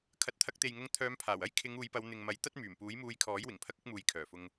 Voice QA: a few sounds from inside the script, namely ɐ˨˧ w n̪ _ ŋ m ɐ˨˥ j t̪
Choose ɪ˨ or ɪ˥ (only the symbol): ɪ˨